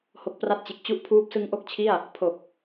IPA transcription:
h o˨˩ k̚ p r a˦˥ t̚ t͡ɕ e˨˩ k̚ t͡ɕ u˦˥ ʔ pʰ uː˦˥ p̚ s ɯ˧ ŋ ʔ o˥˩ k̚ t͡ɕʰ i˥˩ a̯ | pʰ o˨˩ k̚

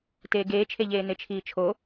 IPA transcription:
t eː ɡ eː t͡ʃʰ e ʎ eː n e t͡ʃʰ iː t͡ʃʰ o

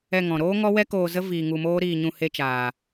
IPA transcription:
ɛ˧ ŋ ɔ̃˨ ɾ oː˦ ŋ ɔ˦ w ɛ˦ k oː˧ z ə˦ v iː˧ ŋ u˧ m oː˦ ɾ iː˧ ɲ ũ˧ h e˧ t͡ʃ aː˨

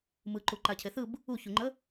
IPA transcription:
m ɯ ǃ u ǃ a cʰ e θ ɯ b | u ç u ŋ͡ǃ ə

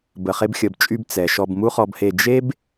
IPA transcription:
b ə˨ χ e˧ b xʲ ə˨ b t͡ʃʼ y˧ b t͡s ɛ˨ ʃ ɔ˧ b m u˦ χ ɔ˧ b h e˧ d͡ʒ e˦ b

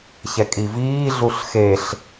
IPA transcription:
ç ɛ kʼ i v iː ɮ u ɬ x e ɬ

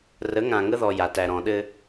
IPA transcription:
r ə˨˦ ŋ ã˨ ŋ ə˦ ð ɔ˨ j a˨ t æ˨ ɾ ɔ̃˨ ɗ ɘ˦

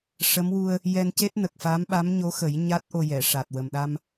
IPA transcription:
ʂ ə˧˥ m w u˧ ə̯ | j ɛ˧ n c e˦˥ t̚ n ə˨˩ k̚ f a˧˥ m ɓ a˧˥ m ɲ o˧˥ x ə˨˩˦ j ɲ a˦˥ t̚ ʔ o˧ j ɛ˨˩˨ ʂ a˨˩ t̚ w ə˨˩ m ɗ a˧ m

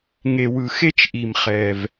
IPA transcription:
ŋ e˩ w ɯ˩ x e˥ t͡ʃ ʔ i˩ m χ ɛ˩ v

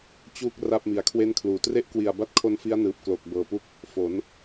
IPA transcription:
t͡ɕ uː˦˥ k̚ r a˥˩ p̚ m i˨˩ a̯ kʰ w e˥˩ n kʰ l uː˩˦ t r e˦˥ ʔ k w i˨˩ a̯ b a˥˩ t̚ kʰ o˦˥ n f i˦˥ a̯ n ɯː˨˩ p̚ k l oː˨˩ k̚ b ɤː˨˩ p u˥˩ k̚ | f o˩˦ n

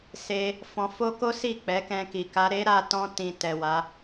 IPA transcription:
s e˧ | f ɔ̃˧ f o˦ k o˦ s i˦˨ k͡p ɛ˨˦ k ɛ̃˧ k i˨ k a˧ ɾ e˦ ɾ a˧ t ɔ̃˧ t ĩ˨ t ɛ˨ w a˨˦

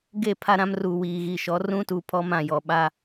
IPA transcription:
ɡ e˦˨ pʰ a˦ ɾ ã˦ m r uː˨ w iː˨ ɣ i˨ ʃ ɔ˨˦ r ũ˦ t uː˨ pʰ ɔ˦ m ã˦˨ j ɔ˨ ɓ a˦

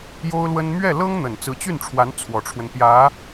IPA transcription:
j o˥ ʊ̯ l w ə˥ n m ɥ ɛ˥˩ l ɤ˥ ŋ n̪ ə˨˩ n t͡s ɹ̩˧˥ t͡ɕ y˥˩ n ʈ͡ʂʰ w a˧˥ n t͡sʰ w ɔ˨˩ ʈ͡ʂʰ w ə˦ n p j ä˧˥

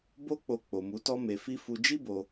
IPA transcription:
b o˦ k͡p o˧ k͡p o˨ m u˨˦ t ɔ˦ m e˧ f i˦ f u˦ d͡ʒ i˦ b o˧

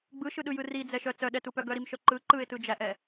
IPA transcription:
ɡ͡b ɯ ʃ ɯ ɗ ɯ j ɯ r i d͡z ɛ ʃ œ t͡s œ ɗ ɛ t u p œ ɡ œ ɾ i m ʃ œ ǃ ɯ ǃ ɯ ɪ̯ t ɯ d͡ʒ æ ʔ ɛ

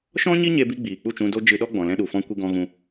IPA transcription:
ʃ ɔ̃˦ ɲ i˦ ɲ e˧ b i˧ ɡ͡b iː˨ k͡p u˦˨ t͡ʃ ũ˧ d o˦ d͡ʒ ɨ˧ ɗ ɔ˦ ɡ͡b ɔ̃˨ l ɛ̃˧ ɗ u˨ f ɔ̃˧ kʷ i˧ ɡ ɔ̃˧ ɣ ũ˧

